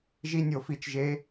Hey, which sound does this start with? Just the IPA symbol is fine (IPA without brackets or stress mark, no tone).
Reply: ʒ